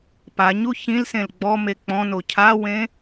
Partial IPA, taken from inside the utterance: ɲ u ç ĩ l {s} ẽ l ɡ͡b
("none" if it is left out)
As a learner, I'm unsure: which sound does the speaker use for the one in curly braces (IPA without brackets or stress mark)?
s